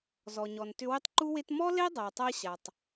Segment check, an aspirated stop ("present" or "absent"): absent